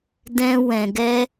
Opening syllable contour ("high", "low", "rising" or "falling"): high